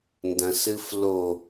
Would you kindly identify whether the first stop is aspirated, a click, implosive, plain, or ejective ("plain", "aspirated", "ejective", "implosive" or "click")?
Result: plain